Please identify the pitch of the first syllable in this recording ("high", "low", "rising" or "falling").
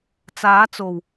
rising